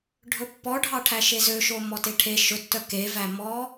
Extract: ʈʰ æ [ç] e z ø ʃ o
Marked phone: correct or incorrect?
incorrect